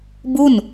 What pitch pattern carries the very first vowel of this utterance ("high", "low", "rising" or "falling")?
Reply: falling